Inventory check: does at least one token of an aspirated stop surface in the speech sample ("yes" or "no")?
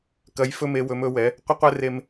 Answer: no